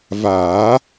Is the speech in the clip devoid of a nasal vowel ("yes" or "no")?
yes